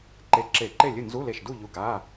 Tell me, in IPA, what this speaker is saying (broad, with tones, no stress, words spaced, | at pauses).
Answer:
ǃe˧˩ǁe˧˩˧ǃe˥˨lʲɨ˥˨ nzu˧˥˧le˧˩ʃdu˥˨ʎu˧˩ ɡa˧˥˧